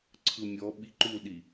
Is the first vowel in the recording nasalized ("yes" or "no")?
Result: no